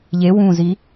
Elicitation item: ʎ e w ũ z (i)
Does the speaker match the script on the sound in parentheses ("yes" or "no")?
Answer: yes